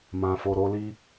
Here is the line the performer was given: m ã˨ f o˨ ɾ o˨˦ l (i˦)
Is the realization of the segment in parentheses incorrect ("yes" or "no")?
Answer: no